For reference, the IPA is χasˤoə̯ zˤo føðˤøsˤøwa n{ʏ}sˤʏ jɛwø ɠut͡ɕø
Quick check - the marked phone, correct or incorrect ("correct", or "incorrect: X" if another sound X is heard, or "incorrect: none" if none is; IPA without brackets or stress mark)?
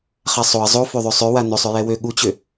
correct